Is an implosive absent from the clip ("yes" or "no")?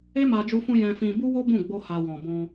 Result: yes